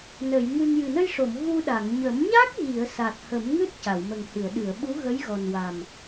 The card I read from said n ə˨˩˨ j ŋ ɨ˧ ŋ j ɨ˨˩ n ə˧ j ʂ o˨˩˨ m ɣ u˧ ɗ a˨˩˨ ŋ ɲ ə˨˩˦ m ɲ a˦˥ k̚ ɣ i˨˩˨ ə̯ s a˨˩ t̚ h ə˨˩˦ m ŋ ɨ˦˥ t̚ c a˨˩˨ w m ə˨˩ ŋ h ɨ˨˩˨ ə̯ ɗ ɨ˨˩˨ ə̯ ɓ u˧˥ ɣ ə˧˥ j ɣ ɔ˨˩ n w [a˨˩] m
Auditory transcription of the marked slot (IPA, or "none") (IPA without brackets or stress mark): a˨˩